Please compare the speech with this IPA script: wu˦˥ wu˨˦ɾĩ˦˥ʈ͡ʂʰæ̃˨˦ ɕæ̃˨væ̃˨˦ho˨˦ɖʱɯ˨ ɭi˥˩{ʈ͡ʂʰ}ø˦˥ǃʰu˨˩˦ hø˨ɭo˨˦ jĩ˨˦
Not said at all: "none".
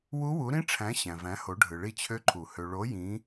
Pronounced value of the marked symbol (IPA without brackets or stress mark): t͡ɕʰ